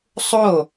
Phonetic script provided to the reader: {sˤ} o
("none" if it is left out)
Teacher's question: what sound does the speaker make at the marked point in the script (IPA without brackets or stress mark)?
sˤ